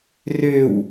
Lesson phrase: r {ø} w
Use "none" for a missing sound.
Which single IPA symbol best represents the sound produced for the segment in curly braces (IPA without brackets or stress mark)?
ø